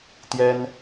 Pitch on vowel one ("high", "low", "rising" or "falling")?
high